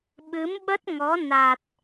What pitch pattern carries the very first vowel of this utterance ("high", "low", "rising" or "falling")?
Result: rising